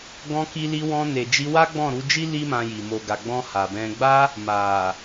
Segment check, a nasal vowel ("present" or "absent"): present